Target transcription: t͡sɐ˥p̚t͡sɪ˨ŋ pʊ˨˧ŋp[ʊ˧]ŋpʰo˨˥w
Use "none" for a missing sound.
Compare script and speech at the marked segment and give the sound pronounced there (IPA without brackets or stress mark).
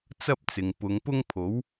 ʊ˥